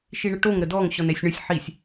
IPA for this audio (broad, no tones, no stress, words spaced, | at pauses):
ʃiɳəʈoŋ ɾədɔŋ ɕɔnɛsʲɳəsʲ ħisʲ